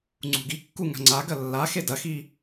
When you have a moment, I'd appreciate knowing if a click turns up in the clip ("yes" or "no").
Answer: yes